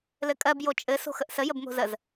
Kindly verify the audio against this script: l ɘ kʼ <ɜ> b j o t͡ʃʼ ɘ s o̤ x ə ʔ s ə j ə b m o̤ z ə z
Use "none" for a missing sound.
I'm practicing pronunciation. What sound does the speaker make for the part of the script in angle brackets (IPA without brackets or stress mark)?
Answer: ɜ